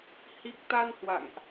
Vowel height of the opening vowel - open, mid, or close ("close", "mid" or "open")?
close